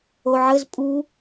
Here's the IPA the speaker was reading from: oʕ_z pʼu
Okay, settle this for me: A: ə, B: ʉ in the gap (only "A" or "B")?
A